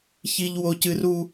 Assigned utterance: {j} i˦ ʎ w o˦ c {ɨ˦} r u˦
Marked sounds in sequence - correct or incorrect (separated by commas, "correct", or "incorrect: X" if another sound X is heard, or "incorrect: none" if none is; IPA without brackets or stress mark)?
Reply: incorrect: ç, correct